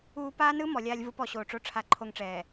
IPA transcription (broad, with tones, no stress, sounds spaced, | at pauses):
uː˦ p aː˦ n ɯ˦ m ɔ˨ lʲ aː˦ lʲ v ɯ˦ p ɔ˨ ɕ oː˨ ʈ͡ʂ o˦ ʈ͡ʂʰ a˦ ǃʰ o˦ ŋ ʈ͡ʂ ɛː˨